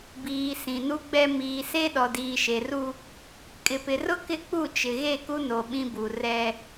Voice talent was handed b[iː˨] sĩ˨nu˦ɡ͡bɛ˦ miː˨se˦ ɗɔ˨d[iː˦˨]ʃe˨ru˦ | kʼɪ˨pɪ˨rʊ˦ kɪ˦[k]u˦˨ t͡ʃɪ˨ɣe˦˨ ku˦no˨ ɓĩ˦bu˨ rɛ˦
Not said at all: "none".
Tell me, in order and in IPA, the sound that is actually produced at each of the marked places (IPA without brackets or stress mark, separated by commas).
iː˨, iː˨, k͡p